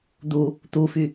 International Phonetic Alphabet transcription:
d̪u | t̪ufy

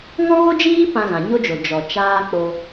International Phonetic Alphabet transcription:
ŋɔ̃˦ɣo˦d͡ʒiː˦ pã˧ɣã˨ɲo˦d͡ʒo˨ d͡ʒɔ˨t͡ʃaː˦ k͡po˧

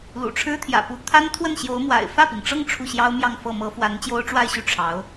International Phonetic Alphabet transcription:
lṵ˨˩ʈ͡ʂʰɻ̩˥t̪ʰjä̰˨˩pu˧˥ t̪ʰa˥nt̪ʰwə˥˩nɕjo˧˥ʊ̯mwa̰˨˩ɪ̯ fä˥˩pi˩ŋ ʈ͡ʂɤ˥˧ŋ ʈ͡ʂʰu˥˩ɕjɑ˥ʊ̯mjɑ˥˧ŋfɤ˥˩ mɤ˧˥ fwa˧˥nt͡ɕjo˥ʊ̯ʈ͡ʂwa˥˧ɪ̯ɕy˥˩ ʈ͡ʂʰɑ˧˥ʊ̯

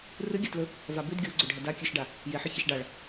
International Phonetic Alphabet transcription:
rɨɡʲatlɵ | vabʉd ɡʲoɡ͡ǀɵ ɖʱɐdakʲʉʃɖa | jeħɨ çeʃɖaɭ

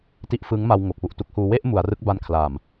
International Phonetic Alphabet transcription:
ti˦˥ʔfɯː˦˥ŋma˧w ŋo˨˩k̚fu˨˩ʔtu˦˥k̚huː˧ we˥˩ʔ mu˩˦a̯rɯ˦˥k̚ ba˦˥nkʰlaː˨˩m

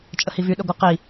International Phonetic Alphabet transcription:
t͡ʃʼəhivy ɗəɡʷə qi

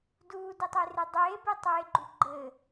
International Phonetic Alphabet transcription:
duːdetˤere dˤeːbetˤeːɡ͡ǃu ɡ͡ǃɘ

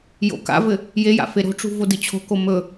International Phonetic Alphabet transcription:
jo̰ka̰vɘ | jeja̰ feɾo̤ʈ͡ʂṳ vodɨt͡ɕʰo̤ko mɵ

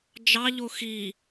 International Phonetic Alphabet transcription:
d͡ʒɑ ʎoxi

